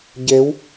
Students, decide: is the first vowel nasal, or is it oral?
oral